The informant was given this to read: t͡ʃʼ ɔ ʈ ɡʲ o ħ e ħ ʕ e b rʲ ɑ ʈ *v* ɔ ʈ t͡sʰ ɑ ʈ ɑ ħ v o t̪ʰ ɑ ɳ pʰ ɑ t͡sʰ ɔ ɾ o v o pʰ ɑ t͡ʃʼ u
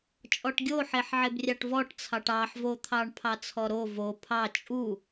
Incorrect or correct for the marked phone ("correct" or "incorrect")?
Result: correct